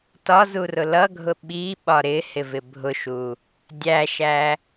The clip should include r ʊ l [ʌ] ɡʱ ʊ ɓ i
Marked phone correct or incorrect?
correct